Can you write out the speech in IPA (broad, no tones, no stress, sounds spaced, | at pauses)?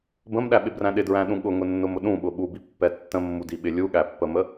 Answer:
b ə̃ m ɗ æ ɓ ɪ b r æ̃ ɗ ɪ d ɹ æ̃ ɗ ũ ɠ ʊ ŋ ʊ nː ʊ m ʊ ɗ ũ ɓ ʊ ɓ u b i pː ɛ tː ə̃ mː u d i ɓ ɪ lʲ u ɠ æ pː ə m ə